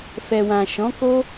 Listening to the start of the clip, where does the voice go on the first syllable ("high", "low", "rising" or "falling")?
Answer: low